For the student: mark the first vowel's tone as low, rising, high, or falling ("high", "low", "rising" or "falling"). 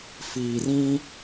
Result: low